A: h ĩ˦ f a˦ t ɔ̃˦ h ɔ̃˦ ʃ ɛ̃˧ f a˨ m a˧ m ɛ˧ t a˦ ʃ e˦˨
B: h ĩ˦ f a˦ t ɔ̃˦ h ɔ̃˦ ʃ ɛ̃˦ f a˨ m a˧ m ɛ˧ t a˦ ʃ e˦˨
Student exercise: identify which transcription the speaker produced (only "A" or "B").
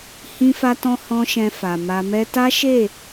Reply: A